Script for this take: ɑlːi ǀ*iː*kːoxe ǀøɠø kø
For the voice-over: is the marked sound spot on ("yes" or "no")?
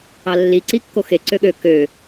no